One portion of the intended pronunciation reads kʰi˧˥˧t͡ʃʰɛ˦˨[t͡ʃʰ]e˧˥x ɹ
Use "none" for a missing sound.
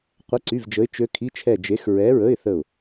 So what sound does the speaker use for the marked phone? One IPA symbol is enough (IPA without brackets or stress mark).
d͡ʒ